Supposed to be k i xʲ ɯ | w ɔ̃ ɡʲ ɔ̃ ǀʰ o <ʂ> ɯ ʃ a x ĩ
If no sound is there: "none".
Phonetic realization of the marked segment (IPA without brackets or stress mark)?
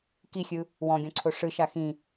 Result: ʂ